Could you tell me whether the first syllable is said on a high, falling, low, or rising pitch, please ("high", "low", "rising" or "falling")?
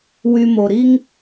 low